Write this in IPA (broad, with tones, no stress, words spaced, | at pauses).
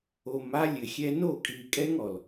o˨ma˦ lʲɘ˨xʲɛ˦ no˦˨kʼi˨kʼɛ˦ŋ ɔ˨l